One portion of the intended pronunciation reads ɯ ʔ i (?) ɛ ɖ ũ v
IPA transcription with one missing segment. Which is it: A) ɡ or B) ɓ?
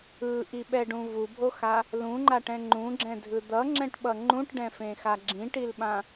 B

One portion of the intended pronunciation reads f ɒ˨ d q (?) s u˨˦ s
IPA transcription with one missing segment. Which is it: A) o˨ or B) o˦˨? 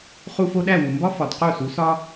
B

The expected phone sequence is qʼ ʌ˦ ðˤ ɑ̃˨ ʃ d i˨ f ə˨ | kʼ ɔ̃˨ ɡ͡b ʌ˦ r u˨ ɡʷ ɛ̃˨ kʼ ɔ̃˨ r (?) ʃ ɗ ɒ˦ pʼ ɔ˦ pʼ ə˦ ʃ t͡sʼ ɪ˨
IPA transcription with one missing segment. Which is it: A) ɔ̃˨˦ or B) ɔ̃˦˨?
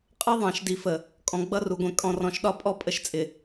A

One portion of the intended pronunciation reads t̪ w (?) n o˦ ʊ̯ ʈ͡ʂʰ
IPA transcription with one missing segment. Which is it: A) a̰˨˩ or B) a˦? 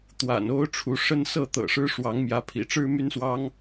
A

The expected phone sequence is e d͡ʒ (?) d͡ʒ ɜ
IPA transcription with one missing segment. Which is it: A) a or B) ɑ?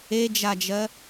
A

